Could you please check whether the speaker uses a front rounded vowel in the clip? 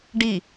no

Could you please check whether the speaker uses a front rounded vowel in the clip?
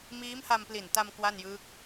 no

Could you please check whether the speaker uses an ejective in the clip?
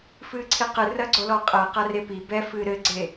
yes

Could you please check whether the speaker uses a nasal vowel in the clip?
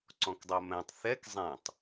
yes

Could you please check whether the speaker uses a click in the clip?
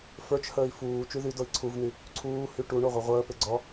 yes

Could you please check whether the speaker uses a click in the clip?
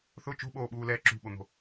yes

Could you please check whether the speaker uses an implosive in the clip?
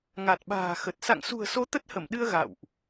yes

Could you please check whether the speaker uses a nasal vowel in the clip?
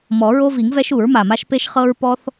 no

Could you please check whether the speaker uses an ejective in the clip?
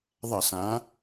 no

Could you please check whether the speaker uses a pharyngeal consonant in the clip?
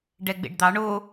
no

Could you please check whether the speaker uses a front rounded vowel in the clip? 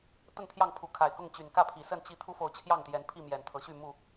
yes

